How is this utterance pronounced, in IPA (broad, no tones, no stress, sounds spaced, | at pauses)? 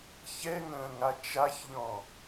ç ɛ ŋ ə̃ː ŋ a t͡ʃ a ç ʎ ɔ̃